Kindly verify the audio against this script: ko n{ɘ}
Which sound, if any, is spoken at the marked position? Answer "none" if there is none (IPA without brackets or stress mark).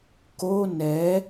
ɛ